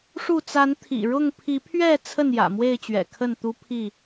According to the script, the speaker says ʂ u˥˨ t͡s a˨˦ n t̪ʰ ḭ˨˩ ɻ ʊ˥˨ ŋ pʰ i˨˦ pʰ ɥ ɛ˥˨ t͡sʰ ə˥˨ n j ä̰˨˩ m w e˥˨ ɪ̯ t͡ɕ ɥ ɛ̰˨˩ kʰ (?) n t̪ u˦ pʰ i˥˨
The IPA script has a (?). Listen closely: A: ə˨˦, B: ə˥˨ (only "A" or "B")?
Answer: B